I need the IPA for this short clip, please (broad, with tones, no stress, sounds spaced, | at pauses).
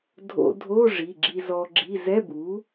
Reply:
dʱ o̰˧ dʱ o˧˥˧ ʐ i˩˧˩ ɡ͡ǁ i˧ z ɔ˧ ɡ͡ǁ i˧˥˧ z ɛ˧˥˧ b u˩˥